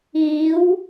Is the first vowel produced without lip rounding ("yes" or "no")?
yes